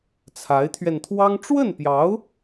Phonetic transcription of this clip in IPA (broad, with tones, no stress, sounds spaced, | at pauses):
t͡sʰ a˧˥ ɪ̯ t̪ʰ ɥ ɛ˧ n t̪ʰ w ɑ˥ ŋ ʈ͡ʂ w ə˥˩ n p j ɑ˧˥ ʊ̯